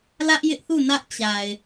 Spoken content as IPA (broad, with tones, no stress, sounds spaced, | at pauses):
l ä˦ ʔ j ɪ˦ ʔ θ u˦˨ n ä˦ ʔ t͡ɕ a˨ ɪ̯